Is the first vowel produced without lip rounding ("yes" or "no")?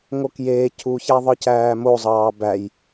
no